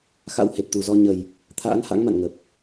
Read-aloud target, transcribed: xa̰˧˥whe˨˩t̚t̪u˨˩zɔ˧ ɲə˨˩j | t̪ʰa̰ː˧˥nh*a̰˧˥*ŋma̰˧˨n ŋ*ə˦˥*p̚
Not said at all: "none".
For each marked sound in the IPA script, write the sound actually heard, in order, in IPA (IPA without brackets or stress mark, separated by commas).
a̰˧˥, ə˨˩